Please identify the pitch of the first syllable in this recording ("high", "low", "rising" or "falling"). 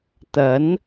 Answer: rising